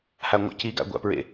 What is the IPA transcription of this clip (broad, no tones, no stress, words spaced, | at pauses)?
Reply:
haŋʷa̰ciɡa̰ ɡʷa̰pɹḛ